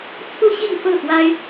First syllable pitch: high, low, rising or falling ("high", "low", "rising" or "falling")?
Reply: falling